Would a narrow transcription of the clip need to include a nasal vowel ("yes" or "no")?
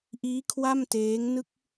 no